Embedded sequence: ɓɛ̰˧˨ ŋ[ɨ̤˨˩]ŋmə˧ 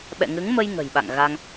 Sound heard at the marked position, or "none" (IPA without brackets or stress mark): ɨ˨˦